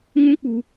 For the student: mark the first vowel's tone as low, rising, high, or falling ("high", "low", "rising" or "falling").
high